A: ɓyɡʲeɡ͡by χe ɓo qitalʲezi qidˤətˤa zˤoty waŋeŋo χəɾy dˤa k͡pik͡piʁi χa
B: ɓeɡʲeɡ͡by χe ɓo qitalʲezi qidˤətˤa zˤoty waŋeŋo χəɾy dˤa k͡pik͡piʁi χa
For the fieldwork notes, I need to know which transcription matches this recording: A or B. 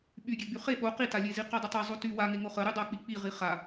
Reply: A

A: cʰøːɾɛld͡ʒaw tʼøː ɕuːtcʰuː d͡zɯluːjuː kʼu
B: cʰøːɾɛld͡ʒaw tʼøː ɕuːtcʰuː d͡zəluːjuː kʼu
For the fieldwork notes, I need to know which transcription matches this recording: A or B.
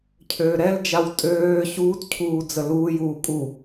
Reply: B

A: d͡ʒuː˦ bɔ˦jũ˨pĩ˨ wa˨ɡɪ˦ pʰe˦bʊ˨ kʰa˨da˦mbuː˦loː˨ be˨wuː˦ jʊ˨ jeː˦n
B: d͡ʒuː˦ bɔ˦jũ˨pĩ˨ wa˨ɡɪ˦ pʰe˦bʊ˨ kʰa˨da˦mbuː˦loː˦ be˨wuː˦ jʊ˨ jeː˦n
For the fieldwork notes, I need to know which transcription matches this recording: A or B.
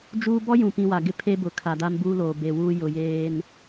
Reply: A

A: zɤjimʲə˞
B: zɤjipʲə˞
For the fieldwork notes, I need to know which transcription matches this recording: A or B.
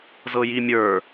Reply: A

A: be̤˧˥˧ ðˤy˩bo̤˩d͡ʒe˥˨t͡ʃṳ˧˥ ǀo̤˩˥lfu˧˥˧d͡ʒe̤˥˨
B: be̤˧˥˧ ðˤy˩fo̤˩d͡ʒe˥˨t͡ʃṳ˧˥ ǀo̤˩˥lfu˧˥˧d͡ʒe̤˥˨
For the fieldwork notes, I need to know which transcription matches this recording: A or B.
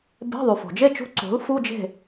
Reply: B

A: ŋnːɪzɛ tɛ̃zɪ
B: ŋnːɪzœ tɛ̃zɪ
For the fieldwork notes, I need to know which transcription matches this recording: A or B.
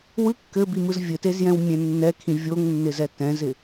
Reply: A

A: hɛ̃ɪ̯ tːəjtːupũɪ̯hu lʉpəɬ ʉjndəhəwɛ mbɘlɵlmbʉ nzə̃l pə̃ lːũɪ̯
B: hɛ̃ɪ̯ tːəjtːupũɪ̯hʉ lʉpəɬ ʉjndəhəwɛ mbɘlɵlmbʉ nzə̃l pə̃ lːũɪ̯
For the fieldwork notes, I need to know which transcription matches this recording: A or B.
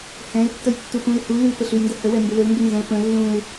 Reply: A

